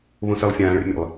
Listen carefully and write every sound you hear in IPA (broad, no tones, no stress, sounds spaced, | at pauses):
β õ s e lˠ fʲ ãː ɭ ḛ mʲ ɛ̰ lˠ